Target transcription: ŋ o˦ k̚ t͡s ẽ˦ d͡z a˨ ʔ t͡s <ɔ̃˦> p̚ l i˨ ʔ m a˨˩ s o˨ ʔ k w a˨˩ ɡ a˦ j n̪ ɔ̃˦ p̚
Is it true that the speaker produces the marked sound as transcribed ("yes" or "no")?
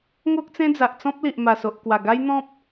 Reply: yes